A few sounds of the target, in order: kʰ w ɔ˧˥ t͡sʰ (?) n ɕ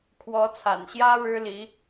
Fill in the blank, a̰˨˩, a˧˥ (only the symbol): a̰˨˩